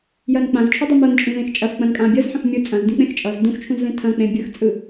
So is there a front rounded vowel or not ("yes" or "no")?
no